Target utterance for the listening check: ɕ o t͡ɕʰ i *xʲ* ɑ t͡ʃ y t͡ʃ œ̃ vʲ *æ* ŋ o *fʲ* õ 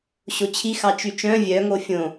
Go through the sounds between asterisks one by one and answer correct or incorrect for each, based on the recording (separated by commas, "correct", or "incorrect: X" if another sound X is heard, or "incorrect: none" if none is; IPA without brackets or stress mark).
incorrect: x, incorrect: œ, correct